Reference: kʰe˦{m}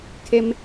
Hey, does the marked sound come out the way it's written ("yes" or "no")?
yes